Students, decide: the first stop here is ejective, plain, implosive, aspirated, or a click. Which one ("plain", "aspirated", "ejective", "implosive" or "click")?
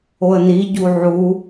plain